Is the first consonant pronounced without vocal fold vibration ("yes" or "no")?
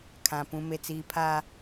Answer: yes